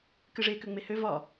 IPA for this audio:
k ɨ ʐ e k ø ŋ͡m e h ø v ɒ

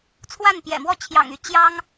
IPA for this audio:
t͡sʰ w a˥˩ n p j ɛ̰˨˩ m w ɔ˥˩ t͡ɕʰ j ɑ̰˨˩ ŋ y˥˩ t͡ɕ j ɑ˥ ŋ

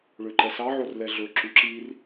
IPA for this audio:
ɭ ø ǃ ɛ s ɑ ʕ o r l ɛ ɮ ɵ ǁ ʉ ǁ i r

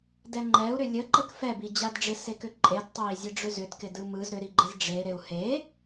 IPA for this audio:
d ɛ ŋ͡ǃ ɛ u̯ ɾ ʏ lʲ ə ǃ ə k f ɛ b i d͡ʑ a d ɖ͡ʐ ɪ s e k ʏ ǃʼ e d tˤ a i̯ zʲ e ɖ͡ʐ ʏ z ʏ d k ɪ d ɯ m ɯ z ɾ ʏ ɾ i ɡ͡ǃ e z ɖ͡ʐ e ɾ e u̯ h e

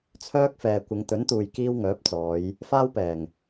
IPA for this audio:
t͡sʰ œː˥ k̚ f ɛː˨ kʷ ɪ˨˧ ŋ t̪ ɵ˨˥ n t̪ uː˨ j k iː˥ w ŋ œː˨˥ p̚ t͡s ɔː˨˧ j | f aː˥ w p ɛː˨˩ ŋ

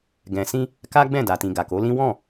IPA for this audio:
ɡ ɛ̃˨ s ĩ˧ | k a˦ ɡ͡b ɛ̃˦˨ d a˨ t ĩ˨ ɡ a˨ k o˨˦ l ĩ˦ w ɔ̃˦˨

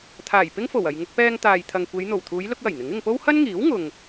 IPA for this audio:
t̪ʰ aː˨˩ j p ɪ˥ ŋ f o˨˩ w ɐ˨ j ŋ ʊ˧ k̚ p ɛː˧ ŋ t̪ aː˨ j t̪ʰ ɐ˨ ŋ kʷ e˨˧ j n̪ o˨˩ w t̪ʰ uː˨˧ j l ʊ˧ k̚ w ɐ˨˩ j n̪ ɪ˨˥ ŋ ɪ˧ ŋ p o˥ w h ɐ˥ n ŋ iː˨˥ w ŋ ʊ˨ ŋ

